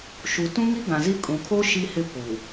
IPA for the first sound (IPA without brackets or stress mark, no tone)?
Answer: ʃ